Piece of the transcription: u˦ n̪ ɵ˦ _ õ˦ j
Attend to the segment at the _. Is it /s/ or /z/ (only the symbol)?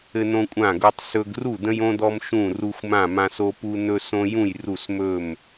s